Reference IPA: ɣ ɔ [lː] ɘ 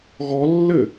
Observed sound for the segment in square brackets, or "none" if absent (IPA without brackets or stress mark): lː